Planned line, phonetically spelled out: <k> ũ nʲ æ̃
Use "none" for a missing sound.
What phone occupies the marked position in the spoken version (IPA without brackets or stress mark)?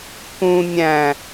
k